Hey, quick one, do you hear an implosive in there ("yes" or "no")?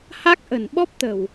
yes